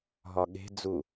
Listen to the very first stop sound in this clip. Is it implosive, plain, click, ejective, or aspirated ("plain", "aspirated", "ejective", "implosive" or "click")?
implosive